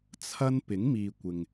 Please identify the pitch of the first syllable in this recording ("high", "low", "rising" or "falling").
high